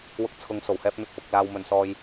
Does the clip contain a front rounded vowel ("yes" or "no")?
no